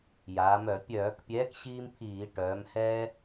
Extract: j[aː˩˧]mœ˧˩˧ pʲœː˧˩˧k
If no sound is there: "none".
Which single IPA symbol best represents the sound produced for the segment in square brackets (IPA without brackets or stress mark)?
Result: aː˩˧